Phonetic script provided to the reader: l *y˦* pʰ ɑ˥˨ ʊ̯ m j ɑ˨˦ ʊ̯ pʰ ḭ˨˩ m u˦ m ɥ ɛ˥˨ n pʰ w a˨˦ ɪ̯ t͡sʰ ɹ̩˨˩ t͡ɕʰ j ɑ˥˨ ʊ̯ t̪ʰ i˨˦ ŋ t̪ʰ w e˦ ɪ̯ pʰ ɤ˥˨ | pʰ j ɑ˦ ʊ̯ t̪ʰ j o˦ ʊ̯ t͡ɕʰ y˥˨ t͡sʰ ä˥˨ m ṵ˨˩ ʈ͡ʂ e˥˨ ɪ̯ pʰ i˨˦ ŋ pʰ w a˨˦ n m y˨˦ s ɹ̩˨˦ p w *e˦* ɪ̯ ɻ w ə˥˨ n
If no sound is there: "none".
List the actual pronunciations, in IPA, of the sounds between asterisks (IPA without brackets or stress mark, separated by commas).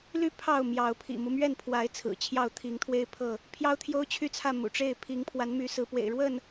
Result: y˥˨, ḛ˨˩